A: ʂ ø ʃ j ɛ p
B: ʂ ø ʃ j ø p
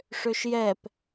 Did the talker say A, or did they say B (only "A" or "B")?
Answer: A